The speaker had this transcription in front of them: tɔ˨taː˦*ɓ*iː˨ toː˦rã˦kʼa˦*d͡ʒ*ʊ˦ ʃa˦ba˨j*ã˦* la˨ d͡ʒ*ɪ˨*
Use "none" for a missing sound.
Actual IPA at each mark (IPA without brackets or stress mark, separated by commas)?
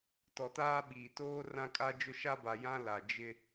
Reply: ɓ, d͡ʒ, ã˦, ɪ˦